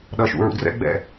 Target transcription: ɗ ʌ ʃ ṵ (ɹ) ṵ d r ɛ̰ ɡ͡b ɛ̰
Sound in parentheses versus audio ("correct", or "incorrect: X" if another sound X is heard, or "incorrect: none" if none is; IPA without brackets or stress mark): correct